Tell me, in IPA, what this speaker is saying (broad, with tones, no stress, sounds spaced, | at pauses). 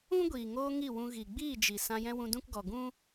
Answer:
ũ˦ ɡʷ iː˨ ŋ oː˧ ŋ i˦˨ w ũ˧ ɣ i˨ ɡ͡b iː˦˨ d͡ʒ i˨ s ã˧ j ɛ̃˦ w ũ˧ d ũ˦ k ɡ ɔ˨ ɡ ũ˦